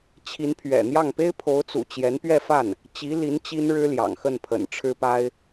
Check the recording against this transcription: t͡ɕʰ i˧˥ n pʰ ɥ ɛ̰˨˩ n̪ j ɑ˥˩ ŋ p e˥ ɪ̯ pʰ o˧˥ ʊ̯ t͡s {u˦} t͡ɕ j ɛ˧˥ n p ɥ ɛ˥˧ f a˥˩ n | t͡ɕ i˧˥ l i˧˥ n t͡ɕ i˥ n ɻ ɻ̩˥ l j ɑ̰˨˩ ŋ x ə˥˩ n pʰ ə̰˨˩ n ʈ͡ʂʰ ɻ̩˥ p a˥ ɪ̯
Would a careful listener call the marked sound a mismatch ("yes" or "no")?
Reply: yes